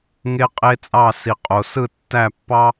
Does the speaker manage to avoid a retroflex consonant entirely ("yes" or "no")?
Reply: yes